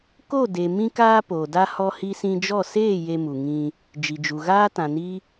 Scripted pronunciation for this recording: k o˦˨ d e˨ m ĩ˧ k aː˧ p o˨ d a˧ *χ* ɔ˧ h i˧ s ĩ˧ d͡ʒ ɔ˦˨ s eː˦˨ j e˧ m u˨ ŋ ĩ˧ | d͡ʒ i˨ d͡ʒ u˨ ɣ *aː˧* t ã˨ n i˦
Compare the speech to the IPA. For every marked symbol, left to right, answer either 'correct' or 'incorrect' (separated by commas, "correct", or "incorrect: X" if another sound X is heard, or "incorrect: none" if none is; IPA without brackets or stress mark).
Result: incorrect: h, incorrect: aː˦